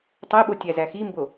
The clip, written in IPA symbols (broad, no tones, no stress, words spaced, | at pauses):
tˤeɓo tʲæzæximbo